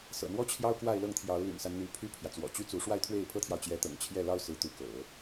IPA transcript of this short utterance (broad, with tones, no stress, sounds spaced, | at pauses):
s ɤ̰˨˩ n̪ w ɔ˥ t͡ɕʰ j ɑ˥ ʊ̯ k w a˥˧ ɪ̯ l ɤ˥˩ ŋ t̪ʰ j ɑ˧˥ ʊ̯ l y̰˨˩ n s a˦ n n̪ y˧˥ pʰ y˥ pʰ j ä˨ t͡s w ɔ̰˨˩ t͡ɕ y˥ t͡s u˧˥ ʂ w a˥˧ ɪ̯ t̪ʰ w e˥˩ ɪ̯ pʰ ɤ˥ t̪ʰ j ɑ˨ ʊ̯ t͡ɕ j ɛ˧˥ t̪ ɤ̰˨˩ ŋ t͡ɕʰ j ɛ˥˩ l ɑ˥ ʊ̯ s ɹ̩˧˥ t̪ u˧˥ k ɤ̰˨˩˦